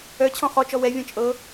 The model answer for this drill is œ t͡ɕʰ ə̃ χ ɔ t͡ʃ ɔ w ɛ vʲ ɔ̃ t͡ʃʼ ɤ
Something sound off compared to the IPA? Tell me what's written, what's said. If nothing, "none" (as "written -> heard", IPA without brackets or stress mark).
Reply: ə̃ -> ɔ̃